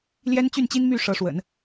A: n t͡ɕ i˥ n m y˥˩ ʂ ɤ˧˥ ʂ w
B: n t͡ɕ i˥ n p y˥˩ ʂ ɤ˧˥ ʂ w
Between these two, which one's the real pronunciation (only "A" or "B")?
A